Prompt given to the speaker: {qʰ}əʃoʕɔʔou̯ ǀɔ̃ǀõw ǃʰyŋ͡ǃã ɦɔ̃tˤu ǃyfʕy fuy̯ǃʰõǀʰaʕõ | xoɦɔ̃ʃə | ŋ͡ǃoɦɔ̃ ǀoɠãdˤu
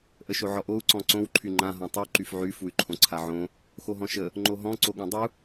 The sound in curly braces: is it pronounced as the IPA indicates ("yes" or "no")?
no